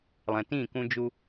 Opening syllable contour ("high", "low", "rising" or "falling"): low